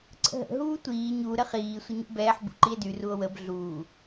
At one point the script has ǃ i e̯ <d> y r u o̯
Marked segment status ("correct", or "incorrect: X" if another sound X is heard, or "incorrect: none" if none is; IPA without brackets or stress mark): correct